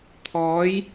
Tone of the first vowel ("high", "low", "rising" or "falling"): rising